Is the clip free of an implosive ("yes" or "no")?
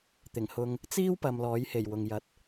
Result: yes